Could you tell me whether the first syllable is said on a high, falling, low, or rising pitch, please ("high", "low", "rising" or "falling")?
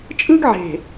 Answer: high